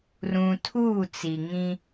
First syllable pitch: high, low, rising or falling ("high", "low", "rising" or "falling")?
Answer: low